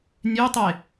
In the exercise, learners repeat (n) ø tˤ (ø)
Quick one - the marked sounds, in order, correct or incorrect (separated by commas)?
incorrect, incorrect